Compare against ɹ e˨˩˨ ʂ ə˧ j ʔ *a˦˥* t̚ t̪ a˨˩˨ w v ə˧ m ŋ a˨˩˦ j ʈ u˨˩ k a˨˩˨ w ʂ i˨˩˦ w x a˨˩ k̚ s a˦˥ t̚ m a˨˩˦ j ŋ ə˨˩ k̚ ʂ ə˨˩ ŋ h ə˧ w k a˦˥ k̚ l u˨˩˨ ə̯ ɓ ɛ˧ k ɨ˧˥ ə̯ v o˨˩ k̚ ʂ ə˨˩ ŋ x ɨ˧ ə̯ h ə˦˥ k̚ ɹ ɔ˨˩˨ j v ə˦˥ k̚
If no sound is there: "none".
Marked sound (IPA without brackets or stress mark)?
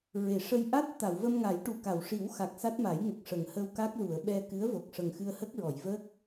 a˦˥